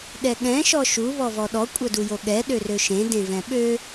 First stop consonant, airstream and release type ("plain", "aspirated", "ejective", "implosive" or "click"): implosive